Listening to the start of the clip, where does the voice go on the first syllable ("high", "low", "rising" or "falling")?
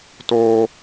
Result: high